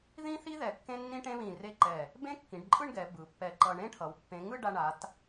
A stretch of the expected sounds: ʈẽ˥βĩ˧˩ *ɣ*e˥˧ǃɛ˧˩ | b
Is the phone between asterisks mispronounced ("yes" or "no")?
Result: yes